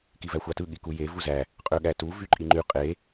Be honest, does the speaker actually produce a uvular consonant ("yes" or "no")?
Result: yes